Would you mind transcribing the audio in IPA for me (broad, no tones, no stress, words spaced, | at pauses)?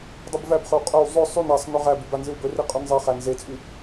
dˤɨbvæbχɵw qʼɵw zˤɵ sˤyn asˤ nɵʁæbyb anzɨwbɵri qʼynzˤeχæn zet͡sʼy